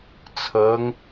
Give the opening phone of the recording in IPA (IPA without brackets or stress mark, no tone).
t͡sʰ